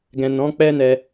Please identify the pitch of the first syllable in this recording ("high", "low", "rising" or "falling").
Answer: low